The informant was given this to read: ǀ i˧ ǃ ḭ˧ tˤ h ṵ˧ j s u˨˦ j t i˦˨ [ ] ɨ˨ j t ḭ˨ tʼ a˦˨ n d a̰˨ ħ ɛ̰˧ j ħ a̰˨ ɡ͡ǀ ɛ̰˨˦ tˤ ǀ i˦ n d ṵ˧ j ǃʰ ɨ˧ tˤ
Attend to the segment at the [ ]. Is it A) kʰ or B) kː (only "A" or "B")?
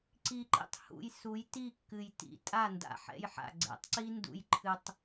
B